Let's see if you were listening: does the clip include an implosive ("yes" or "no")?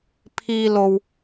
no